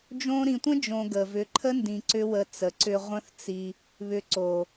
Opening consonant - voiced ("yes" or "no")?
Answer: yes